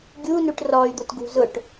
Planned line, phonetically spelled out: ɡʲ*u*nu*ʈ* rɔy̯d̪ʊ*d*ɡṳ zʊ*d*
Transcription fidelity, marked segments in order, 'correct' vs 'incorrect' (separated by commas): correct, correct, incorrect, incorrect